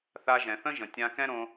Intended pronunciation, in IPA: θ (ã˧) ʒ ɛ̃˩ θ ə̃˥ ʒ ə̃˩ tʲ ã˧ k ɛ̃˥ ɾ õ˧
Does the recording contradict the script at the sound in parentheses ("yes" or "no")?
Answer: yes